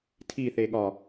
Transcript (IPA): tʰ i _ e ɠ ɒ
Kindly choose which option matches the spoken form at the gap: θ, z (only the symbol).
θ